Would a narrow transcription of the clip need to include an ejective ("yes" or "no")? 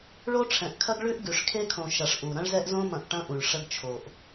no